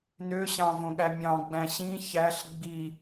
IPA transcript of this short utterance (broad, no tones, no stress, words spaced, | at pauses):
nøɕɑ̃ võɠæmʲɑ̃ɡ͡bæ̃ ɕĩ çæɬ ɡ͡bi